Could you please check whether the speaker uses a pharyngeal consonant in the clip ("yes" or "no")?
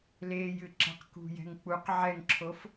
yes